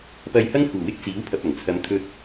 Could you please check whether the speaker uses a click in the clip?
no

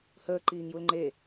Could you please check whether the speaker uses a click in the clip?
yes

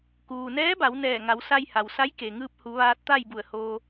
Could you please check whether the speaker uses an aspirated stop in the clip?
no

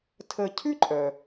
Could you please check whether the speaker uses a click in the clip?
yes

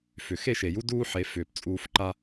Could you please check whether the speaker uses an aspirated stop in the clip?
no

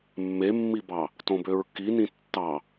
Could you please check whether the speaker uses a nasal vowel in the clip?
yes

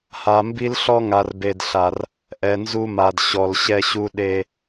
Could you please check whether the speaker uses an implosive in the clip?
yes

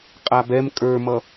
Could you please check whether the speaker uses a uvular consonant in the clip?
yes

